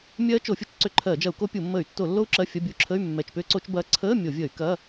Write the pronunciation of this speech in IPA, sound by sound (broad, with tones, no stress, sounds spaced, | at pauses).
mʲ ɜː˦˥ t͡ʃ o˧˩˧ fʲ u˦˥ t͡ʃ ǀ ʏ˧˩˧ ǃʰ ɜː˧˩˧ d͡ʒ ɐ˧˩˧ u̯ k o˦˥ pʲ u˧˩˧ mː əː˧˩˧ y̯ tː o˧˩˧ lː o˦˥ u̯ ǁ ɜ˧˥˧ fʲ ɐ˧˥˧ bʲ u˦˥ ǁʰ ə˧˥˧ y̯ mː ɛ˧˩˧ t͡ʃ p ʏː˦˥ ǀ o˦˥ t͡ʃ b ɐː˦˥ ǀʰ əː˧˥˧ mʲ o˧˩˧ vʲ əː˧˩˧ y̯ k ɐ˧˥˧